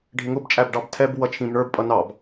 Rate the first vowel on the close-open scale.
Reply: close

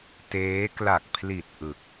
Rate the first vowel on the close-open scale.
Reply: mid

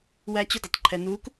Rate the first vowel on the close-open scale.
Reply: open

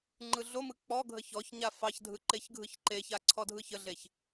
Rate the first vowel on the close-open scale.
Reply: close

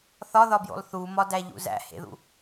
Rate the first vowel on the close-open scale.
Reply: open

